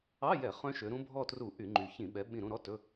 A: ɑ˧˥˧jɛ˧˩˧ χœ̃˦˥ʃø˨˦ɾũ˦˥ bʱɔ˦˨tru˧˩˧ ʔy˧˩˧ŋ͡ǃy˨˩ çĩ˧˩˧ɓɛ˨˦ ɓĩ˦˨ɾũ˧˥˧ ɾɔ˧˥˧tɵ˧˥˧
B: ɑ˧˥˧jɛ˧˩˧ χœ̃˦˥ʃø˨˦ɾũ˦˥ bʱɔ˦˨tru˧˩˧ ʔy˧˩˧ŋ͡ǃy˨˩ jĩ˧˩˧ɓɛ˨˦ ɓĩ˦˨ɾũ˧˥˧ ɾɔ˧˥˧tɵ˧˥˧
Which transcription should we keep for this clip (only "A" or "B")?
A